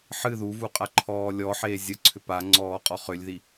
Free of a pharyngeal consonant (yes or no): no